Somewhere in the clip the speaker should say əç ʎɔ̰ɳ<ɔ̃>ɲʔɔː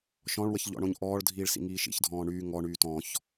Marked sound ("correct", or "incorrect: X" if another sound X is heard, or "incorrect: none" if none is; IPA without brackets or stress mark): incorrect: õ